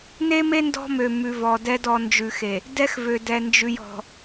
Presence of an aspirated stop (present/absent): absent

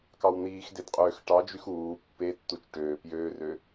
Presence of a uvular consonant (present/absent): present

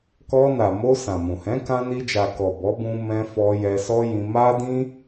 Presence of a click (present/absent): absent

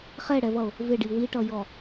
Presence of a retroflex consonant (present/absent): present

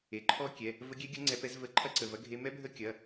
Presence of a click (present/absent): present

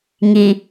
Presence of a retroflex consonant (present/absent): absent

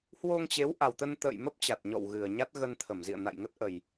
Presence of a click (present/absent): absent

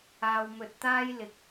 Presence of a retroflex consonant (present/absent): absent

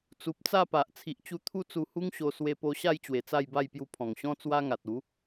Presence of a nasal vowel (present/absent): present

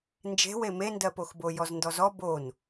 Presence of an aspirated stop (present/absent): absent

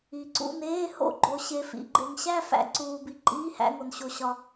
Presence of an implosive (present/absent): absent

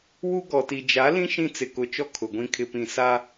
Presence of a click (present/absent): absent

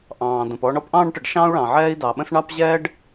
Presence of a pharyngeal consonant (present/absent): present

